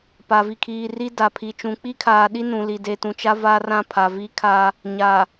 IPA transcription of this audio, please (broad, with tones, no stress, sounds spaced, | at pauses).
p a˨ v i˨ kʰ iː˨ r i˦ d a˨ pʰ i˨ t͡ʃ ũ˨ k͡p i˦ kʰ aː˨ ɗ i˦ n ũ˨ l i˨ d e˨ t ũ˨ t͡ʃ a˦ v aː˦ r ã˦˨ pʰ a˨ v iː˦ kʰ aː˦ | ɲ aː˨